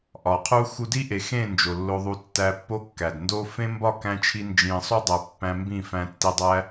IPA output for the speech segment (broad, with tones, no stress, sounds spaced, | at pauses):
ʔ ɒ˨ qʰ u˦ x u˧ d i˦ ʔ e˨ x ẽ˦˨ n d͡ʒ o˨ lː o˧ ðˤ u˧ tː æ˧ pː o˦ kː æ˨ d n d o˧ f ẽ˦ m b ɒ˦˨ k æ̃˧ t͡ʃʰ i˧ n d͡ʒ ĩ˨ sˤ u˦ dˤ æ˧ pː æ̃˧ m b ĩ˦˨ f æ̃˧ tː i˧ dˤ æ˦